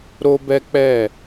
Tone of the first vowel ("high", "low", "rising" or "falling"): high